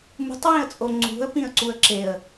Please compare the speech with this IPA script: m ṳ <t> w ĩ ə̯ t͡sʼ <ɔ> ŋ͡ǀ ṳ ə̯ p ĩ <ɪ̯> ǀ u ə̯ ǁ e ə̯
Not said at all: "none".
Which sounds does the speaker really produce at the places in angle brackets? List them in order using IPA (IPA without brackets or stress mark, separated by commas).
tˤ, o, ə̯